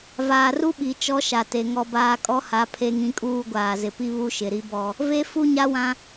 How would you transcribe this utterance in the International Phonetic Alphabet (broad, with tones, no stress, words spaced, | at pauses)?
vaː˨ru˦ɓi˨ t͡ʃɔ˦ʃa˨ te˨ŋɔ˦baː˦ kʼɔ˦ha˨˦ pʰe˦ŋĩ˦kʼuː˦ ɡʷaː˨zɪ˨pi˦ βu˦ʃɪ˨ɾi˦bɔ˦ | ve˦ fu˦ɲa˦wã˦